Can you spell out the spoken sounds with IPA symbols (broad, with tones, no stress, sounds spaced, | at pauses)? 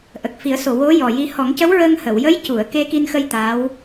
ʔ ə˨˩ k̚ f i˨˩˦ ə̯ s o˨˩ w o˧˥ j ɔ˨˩ j i˧ h ɔ˨˩˦ ŋ c ə˧˥ w ɹ əː˧ ŋ h ə˨˩˨ w j ə˧˥ j c u˨˩˨ ə̯ k e˧ k i˧ n x ə˧ j t̪ aː˧˥ w